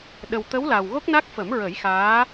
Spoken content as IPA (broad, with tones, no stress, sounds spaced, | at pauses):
ɗ ə˨˩ w t̪ ə˧˥ w l a˨˩ w ɣ o˦˥ k̚ n a˦˥ k̚ f ə˨˩˦ m ɹ ə˨˩˦ j x aː˧˥